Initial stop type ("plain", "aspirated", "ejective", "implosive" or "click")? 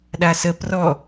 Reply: implosive